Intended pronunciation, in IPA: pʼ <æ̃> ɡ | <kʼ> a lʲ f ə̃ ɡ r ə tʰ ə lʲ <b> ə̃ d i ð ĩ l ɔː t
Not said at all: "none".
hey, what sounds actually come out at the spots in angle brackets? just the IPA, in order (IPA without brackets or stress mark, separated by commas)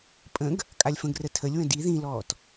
ə̃, kʼ, w